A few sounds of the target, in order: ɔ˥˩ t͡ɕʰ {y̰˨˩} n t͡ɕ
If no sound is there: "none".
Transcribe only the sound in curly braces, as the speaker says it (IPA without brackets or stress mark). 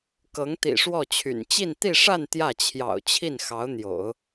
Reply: y̰˨˩